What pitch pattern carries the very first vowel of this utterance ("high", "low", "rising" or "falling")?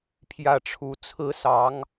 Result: falling